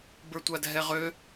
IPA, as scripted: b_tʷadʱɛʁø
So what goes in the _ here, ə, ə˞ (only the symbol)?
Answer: ə˞